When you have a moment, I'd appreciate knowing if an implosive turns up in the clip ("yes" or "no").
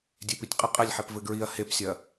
no